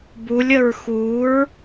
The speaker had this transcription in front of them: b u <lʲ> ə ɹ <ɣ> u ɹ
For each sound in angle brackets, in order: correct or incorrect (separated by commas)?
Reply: correct, incorrect